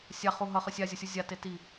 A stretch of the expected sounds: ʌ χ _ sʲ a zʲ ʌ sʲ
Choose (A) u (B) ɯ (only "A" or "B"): B